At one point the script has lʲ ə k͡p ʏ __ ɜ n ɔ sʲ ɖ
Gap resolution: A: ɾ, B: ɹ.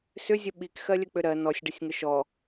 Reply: A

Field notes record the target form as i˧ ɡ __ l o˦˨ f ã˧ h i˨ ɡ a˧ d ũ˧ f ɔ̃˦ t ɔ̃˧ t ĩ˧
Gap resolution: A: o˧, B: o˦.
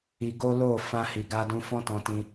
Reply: B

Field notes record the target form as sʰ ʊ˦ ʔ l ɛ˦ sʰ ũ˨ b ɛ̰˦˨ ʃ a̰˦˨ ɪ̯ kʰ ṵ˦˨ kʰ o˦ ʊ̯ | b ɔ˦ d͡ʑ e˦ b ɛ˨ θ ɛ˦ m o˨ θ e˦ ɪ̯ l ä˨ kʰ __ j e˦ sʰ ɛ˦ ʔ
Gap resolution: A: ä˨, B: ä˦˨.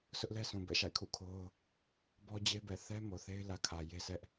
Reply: A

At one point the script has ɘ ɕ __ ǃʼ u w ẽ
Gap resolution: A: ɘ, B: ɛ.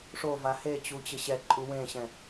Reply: B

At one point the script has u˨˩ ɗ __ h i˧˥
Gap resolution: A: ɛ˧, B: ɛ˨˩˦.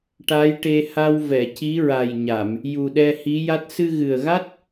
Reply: A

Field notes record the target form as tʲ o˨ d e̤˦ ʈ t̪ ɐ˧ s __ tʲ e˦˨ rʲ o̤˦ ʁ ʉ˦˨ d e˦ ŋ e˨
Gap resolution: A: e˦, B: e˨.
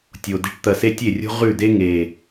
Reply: A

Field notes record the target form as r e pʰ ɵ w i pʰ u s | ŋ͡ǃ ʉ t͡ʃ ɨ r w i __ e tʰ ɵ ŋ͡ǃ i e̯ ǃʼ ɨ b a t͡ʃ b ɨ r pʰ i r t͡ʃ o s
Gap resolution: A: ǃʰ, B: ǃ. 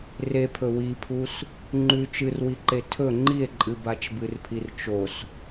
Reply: B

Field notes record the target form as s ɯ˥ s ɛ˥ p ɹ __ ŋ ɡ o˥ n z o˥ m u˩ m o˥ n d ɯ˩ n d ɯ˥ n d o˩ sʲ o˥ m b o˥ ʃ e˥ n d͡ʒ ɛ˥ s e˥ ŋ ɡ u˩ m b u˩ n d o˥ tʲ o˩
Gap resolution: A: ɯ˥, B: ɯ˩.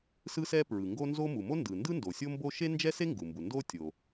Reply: B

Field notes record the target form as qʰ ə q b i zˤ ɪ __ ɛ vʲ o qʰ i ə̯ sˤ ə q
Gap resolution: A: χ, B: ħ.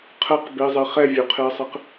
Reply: A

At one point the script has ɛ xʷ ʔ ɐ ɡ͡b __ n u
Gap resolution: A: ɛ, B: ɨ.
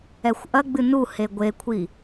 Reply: B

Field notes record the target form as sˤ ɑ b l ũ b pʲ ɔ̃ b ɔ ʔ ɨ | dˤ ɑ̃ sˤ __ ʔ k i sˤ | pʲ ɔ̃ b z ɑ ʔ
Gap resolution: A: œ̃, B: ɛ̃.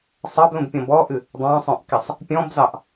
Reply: A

